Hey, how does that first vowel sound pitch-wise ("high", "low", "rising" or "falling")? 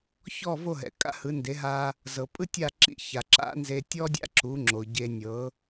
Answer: falling